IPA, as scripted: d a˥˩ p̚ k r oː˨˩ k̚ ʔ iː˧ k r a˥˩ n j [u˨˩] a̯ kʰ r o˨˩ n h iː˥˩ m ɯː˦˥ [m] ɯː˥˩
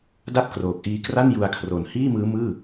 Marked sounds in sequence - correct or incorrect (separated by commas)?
incorrect, correct